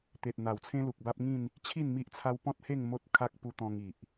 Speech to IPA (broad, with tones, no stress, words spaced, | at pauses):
t̪e˨t̚ n̪a˨˩wt͡sʰẽ˦lu˨k̚ba˦p̚ ŋĩ˥˧n | t͡ɕʰi˥˧n mi˦ʔt͡sʰa˦w pɔ̃˦t̚he˥˧ŋ mo˦t̚kʰa˦k̚ pu˧t̪ɔ̃˧ŋ i˨ʔ